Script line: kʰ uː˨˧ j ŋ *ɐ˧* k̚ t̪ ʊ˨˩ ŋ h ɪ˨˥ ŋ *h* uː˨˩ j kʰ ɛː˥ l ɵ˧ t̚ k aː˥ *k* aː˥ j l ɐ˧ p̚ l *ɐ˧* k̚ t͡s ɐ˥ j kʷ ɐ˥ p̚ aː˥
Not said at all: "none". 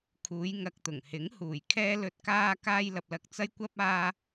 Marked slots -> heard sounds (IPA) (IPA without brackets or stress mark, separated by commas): ɐ˧, h, k, ɐ˧